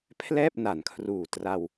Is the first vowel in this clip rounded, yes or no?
no